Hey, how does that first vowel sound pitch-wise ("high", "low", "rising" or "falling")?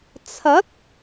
rising